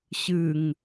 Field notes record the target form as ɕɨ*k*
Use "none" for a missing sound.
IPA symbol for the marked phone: ŋ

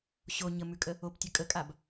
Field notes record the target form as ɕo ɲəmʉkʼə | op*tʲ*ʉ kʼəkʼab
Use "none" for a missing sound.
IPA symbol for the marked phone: tʲ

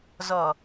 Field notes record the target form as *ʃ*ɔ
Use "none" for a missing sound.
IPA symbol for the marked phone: z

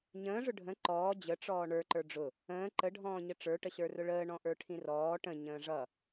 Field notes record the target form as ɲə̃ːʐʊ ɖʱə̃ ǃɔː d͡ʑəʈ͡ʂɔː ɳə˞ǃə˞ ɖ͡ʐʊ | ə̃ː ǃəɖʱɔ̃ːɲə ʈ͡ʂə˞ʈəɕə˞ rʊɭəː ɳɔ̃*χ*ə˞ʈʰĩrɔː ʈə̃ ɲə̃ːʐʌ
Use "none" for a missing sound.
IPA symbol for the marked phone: ʔ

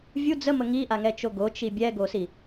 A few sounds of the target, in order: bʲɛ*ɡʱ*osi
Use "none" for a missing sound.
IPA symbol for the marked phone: ɡ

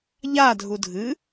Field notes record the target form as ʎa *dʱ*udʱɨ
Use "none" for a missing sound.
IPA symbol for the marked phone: dʱ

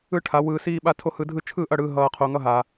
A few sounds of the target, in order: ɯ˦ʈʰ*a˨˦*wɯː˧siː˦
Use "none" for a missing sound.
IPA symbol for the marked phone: a˨˦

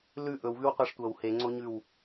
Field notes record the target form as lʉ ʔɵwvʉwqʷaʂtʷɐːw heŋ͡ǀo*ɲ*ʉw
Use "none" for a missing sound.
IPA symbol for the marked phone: ɲ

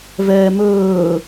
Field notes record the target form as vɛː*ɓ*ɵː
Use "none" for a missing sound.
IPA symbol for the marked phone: m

